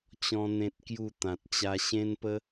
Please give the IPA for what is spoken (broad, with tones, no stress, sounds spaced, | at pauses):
t͡ɕ ɔ̃˦ n̪ ẽ˦ t̚ k j u˥˧ t̪ ã˨ t̚ t͡ɕ a˧ ɕ ẽ˦ n p ə˦